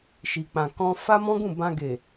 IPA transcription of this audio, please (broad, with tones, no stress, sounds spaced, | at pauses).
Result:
ʃ i˨ k͡p ã˨ k ɔ̃˧ f a˦ m ɔ̃˦ ɡ ũ˦˨ b ã˧ ɡ e˨